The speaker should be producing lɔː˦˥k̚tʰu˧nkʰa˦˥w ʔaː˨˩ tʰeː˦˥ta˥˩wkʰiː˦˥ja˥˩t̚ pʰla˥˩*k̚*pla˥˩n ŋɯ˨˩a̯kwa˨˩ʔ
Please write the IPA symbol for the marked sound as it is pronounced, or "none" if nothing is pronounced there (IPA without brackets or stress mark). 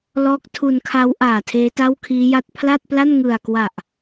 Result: t̚